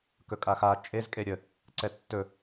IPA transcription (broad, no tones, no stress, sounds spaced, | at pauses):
k ɵ kʼ a x a t͡ʃʼ e z kʼ e ɾʲ ə | ǀ ɛ tː ɵ